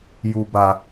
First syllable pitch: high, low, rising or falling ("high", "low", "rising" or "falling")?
low